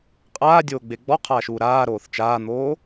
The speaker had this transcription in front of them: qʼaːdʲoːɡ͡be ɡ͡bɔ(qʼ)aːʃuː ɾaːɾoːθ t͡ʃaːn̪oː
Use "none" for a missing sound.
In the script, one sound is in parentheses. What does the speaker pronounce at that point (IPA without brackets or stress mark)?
qʰ